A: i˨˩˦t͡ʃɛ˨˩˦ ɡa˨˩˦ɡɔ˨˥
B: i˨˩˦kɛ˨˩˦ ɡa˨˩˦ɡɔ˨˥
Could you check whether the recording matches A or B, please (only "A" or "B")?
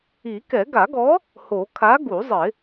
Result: B